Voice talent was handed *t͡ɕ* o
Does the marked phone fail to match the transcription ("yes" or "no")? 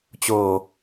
no